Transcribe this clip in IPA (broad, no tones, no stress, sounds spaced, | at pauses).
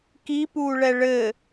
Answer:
k i p uː ɭ ɛ ɭ ɘ